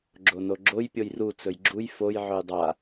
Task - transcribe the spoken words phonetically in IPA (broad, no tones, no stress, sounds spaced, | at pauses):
ɡ͡ǁ o n o ɡ͡ǁ o j pʲ o j r u t͡s ɵ j ɡ͡ǁ u j f o j ʕ ɵ j dˤ a